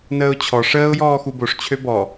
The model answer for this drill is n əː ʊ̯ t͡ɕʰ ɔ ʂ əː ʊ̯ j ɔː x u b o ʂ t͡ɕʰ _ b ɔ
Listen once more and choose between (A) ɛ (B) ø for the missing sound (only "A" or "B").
B